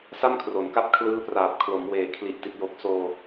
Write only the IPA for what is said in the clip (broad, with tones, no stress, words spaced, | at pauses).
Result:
sa˥˩mkʰro˩˦nka˦˥p̚ kʰlɯː˦˥praː˨˩p̚ kʰlo˩˦mweː˨˩ kʰli˨˩ʔti˨˩t̚jo˨˩k̚ soː˧